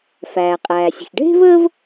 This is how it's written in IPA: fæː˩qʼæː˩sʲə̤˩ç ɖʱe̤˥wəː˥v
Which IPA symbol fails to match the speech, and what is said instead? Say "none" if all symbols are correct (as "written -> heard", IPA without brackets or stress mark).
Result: w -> v